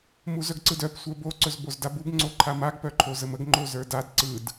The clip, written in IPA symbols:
muzœɡǀɯdœp sʷə˞bo ǀɵzbozdabub ŋ͡ǀoǃʰamaɡ pœǃʰozəməɡ ŋ͡ǃozə˞dad ǀɯd

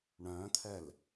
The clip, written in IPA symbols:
ɳœ̃ːt̪ʰɛl

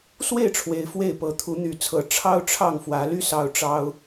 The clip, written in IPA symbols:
swe˥˨ɪ̯ʈ͡ʂʰwe˨˦ɪ̯ fwe˥˨ɪ̯pɤ˨˦ t̪ʰu˨˦n̪y˨˦t͡sʰɤ˨˦ ʈ͡ʂʰɑ˦ʊ̯ʈ͡ʂʰɑ˥˨ŋ fwä˨˦ly˥˨ sɑ˦ʊ̯ʈ͡ʂɑ˦ʊ̯

